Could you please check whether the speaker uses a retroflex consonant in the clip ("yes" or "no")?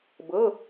no